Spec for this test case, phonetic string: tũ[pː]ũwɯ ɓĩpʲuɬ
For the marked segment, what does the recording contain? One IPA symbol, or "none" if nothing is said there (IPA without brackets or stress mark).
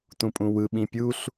pʼ